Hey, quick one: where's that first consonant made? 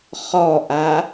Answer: uvula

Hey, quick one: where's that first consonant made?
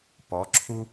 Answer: lips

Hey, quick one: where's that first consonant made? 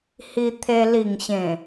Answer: throat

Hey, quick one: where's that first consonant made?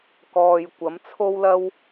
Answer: velum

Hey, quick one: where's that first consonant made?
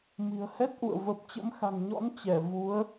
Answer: lips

